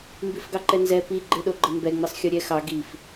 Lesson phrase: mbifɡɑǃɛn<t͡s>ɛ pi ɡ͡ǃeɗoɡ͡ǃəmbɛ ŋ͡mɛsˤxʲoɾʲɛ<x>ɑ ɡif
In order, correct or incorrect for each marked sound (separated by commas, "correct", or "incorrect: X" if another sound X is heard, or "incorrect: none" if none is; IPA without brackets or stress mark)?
incorrect: z, correct